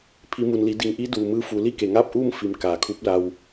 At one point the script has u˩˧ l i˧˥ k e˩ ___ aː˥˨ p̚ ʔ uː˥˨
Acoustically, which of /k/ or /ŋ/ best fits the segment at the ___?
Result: ŋ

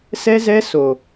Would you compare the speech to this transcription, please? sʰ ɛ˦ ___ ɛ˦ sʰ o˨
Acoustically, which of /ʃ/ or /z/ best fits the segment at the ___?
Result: z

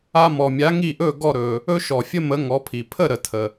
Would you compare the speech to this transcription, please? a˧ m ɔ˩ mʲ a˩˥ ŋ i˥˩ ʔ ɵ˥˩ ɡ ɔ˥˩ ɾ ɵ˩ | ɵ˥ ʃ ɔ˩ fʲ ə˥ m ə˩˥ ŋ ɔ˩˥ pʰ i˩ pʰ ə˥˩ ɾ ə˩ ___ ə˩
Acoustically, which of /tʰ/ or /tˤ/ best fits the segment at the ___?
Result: tʰ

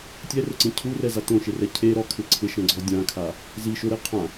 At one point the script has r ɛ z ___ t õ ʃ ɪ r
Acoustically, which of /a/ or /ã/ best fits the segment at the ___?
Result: a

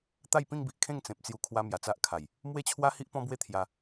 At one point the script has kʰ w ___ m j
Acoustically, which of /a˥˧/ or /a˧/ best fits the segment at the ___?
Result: a˧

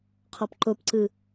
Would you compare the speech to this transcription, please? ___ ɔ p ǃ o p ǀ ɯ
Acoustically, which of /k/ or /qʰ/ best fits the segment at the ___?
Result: qʰ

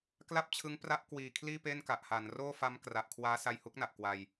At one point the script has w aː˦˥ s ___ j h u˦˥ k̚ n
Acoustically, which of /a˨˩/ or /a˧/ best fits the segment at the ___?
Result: a˧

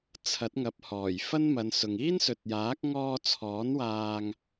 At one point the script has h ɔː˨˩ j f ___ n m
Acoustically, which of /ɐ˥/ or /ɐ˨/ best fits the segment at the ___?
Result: ɐ˥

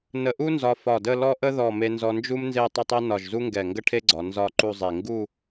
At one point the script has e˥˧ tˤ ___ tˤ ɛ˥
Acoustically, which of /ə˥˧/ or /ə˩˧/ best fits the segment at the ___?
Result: ə˥˧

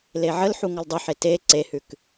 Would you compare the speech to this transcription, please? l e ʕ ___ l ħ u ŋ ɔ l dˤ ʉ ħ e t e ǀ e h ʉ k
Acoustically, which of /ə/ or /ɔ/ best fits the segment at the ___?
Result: ə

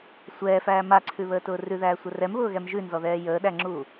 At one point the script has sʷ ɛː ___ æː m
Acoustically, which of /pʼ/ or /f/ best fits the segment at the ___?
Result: f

